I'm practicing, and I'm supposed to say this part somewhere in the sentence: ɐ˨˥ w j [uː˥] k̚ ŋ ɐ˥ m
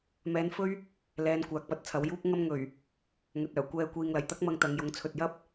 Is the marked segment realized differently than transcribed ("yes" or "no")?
no